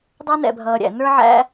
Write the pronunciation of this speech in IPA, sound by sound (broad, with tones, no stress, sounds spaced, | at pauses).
dˤ æ˥ n ɛ̰˩ bʱ ʌː˩ ɾʲ æ̰˩ n ə˞˥ ʕ æ̰˥